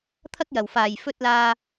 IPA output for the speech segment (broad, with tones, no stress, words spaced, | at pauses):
t̪ʰɐ˥k̚ jɐ˨˩w faː˨˩jfɵ˧t̚ laː˧